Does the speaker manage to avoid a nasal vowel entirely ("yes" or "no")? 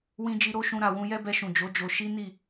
no